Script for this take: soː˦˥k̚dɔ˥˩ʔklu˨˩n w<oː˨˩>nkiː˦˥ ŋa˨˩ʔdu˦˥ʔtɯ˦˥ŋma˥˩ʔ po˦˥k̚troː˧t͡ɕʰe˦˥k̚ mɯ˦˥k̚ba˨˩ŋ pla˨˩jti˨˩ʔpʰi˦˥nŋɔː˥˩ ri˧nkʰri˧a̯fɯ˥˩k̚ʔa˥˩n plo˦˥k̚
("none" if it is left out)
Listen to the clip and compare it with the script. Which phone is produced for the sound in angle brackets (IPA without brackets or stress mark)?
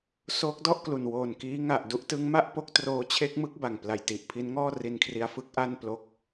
oː˨˩